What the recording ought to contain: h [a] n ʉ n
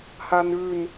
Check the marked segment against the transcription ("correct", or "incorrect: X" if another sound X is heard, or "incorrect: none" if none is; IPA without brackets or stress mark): correct